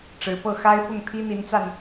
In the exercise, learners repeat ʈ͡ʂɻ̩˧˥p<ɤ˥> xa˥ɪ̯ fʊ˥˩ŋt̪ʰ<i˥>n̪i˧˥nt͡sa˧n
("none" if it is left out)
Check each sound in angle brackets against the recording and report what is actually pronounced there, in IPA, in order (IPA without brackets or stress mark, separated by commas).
ɤ˥, i˥